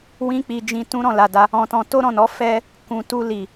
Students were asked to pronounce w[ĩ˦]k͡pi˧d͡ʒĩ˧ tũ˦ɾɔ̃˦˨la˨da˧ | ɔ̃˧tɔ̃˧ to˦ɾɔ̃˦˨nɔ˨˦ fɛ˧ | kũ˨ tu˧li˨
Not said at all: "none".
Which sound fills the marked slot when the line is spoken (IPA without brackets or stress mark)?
ĩ˦